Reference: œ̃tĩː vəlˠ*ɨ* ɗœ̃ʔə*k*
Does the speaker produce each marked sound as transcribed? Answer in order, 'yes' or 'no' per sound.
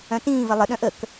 no, yes

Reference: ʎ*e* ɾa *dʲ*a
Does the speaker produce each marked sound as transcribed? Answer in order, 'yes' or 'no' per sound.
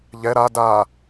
no, no

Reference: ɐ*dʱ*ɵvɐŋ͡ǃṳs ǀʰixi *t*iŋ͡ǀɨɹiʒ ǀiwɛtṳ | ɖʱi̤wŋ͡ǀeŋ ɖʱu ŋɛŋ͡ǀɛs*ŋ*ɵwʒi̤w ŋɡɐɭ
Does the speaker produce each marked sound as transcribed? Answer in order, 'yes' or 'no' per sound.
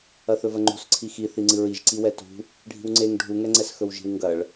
no, no, no

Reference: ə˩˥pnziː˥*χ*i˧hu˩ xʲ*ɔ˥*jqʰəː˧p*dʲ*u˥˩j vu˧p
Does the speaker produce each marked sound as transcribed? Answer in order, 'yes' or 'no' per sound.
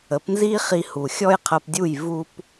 yes, yes, yes

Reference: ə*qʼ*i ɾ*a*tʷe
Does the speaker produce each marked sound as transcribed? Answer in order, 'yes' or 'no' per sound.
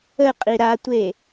yes, yes

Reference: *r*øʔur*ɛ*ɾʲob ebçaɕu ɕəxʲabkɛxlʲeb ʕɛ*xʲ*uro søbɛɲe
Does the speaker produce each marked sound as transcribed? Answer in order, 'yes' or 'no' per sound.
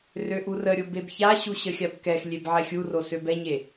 yes, no, yes

